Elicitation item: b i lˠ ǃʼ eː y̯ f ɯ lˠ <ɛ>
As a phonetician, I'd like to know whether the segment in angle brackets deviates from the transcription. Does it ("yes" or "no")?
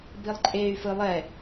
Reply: no